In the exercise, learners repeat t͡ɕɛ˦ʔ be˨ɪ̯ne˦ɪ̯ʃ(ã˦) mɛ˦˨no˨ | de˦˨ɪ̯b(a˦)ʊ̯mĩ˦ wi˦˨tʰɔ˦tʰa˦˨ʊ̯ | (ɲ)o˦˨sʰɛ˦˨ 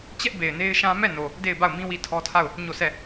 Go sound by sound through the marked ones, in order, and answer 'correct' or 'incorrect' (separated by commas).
correct, incorrect, correct